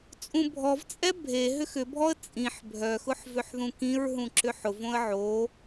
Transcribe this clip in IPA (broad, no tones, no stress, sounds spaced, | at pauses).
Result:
t͡sʼ ũ bʱ ɔ v t͡sʼ ɛ bʱ e ɦ ʏ x ʏ bʱ ɔ ə̯ t͡sʼ ĩ ħ bʱ œ x ʊ ħ v ʏ ħ ð ũ k ĩ ɹ ɦ ũ ǁ ʏ ħ ʊ v õ ə̯ ʕ o